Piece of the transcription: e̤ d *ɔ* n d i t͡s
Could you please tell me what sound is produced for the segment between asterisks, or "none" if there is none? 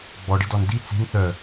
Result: ɔ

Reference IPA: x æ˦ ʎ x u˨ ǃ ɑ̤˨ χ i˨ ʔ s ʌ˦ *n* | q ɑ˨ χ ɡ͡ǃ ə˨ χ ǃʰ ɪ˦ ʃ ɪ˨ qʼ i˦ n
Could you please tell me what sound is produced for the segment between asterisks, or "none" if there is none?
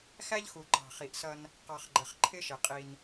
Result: n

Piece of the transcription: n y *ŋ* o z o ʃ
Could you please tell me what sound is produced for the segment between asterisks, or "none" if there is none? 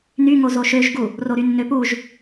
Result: ŋ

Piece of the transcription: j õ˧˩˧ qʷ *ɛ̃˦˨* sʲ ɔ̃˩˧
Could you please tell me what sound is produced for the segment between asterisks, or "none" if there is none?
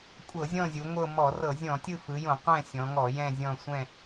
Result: ɛ̃˦˨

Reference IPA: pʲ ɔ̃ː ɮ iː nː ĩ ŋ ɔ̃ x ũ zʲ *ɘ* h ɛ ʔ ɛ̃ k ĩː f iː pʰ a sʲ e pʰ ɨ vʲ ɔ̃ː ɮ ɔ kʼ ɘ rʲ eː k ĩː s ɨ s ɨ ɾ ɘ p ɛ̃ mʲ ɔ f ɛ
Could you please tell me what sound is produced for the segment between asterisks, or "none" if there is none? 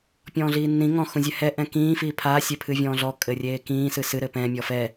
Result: ɛ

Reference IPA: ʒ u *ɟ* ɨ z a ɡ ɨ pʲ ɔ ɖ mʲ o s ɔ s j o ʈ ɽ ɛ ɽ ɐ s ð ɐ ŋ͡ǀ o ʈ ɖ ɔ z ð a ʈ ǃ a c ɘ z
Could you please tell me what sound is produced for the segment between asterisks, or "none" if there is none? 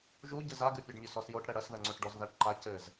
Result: ɟ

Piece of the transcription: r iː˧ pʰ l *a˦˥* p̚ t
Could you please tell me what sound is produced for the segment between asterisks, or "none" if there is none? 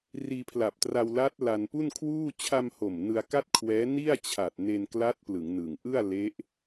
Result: a˨˩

